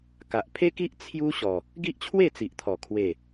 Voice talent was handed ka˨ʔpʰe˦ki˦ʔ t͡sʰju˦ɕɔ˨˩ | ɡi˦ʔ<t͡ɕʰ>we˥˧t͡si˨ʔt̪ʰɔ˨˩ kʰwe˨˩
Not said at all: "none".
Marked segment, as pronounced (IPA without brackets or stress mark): t͡ɕʰ